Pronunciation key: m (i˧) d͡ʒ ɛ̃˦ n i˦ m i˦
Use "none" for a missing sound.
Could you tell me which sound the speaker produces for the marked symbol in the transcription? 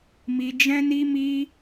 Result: i˧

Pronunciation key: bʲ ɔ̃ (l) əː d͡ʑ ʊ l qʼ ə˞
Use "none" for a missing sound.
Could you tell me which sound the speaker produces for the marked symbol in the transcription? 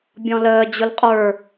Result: l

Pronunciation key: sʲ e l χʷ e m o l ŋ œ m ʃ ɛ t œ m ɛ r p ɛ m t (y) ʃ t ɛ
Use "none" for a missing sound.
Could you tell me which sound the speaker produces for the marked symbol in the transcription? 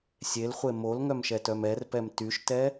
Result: y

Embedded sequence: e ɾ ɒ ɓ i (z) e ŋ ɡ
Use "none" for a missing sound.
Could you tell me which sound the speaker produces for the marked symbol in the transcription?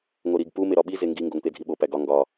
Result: z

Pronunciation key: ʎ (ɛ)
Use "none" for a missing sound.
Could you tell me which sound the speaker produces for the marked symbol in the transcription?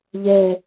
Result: ɛ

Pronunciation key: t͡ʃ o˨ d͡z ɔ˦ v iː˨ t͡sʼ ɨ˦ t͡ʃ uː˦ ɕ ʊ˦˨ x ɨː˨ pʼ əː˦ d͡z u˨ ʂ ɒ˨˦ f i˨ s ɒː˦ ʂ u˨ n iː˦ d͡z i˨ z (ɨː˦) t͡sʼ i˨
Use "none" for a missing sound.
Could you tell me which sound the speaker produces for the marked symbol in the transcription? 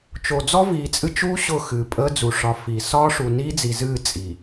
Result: ɨː˦˨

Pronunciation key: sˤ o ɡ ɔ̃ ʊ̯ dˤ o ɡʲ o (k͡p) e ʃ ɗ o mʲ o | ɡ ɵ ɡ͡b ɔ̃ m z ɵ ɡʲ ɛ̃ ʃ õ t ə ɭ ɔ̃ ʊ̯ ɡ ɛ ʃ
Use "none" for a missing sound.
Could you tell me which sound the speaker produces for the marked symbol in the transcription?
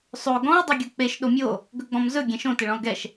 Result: k͡p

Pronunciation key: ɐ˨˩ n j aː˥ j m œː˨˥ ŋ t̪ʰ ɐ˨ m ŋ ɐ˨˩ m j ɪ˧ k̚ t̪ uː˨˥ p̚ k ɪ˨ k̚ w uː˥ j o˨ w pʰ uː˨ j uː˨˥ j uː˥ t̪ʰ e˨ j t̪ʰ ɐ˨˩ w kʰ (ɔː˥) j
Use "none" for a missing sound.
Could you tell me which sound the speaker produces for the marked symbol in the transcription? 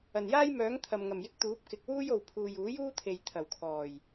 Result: ɔː˨˩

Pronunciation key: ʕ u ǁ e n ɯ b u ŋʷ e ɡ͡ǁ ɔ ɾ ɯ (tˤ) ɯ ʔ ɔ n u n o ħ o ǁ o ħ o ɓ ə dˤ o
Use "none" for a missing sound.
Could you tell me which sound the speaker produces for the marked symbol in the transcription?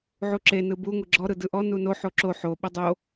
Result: d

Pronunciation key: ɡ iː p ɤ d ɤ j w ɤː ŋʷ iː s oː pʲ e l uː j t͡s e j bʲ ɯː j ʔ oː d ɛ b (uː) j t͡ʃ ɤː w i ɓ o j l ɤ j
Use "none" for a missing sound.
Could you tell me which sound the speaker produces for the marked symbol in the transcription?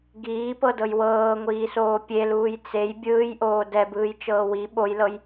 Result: ɯː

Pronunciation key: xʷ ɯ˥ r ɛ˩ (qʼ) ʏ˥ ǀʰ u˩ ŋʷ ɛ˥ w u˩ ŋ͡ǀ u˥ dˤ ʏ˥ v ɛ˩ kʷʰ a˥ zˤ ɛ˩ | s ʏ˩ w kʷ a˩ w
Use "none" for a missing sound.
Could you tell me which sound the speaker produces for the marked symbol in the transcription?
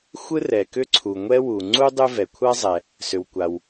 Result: k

